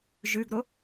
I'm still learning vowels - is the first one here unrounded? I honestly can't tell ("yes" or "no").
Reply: no